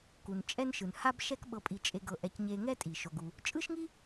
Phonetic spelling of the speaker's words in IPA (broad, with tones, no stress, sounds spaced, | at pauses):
k u˩ n t͡ʃʼ ɛ˥ n ʃ ɯ˩ n h a˥ b ʃ ɛ˥ k ɓ ɤ˧ pʼ i˧ t͡ʃʼ e˧ ɡ ɤ˧ ʔ ɛ˧ c ɲ e˧ ŋ ɛ˥ tʼ i˩ ʃ o˩ ɡ u˩ | t͡ʃʼ ɯ˥ ʃ ŋ i˥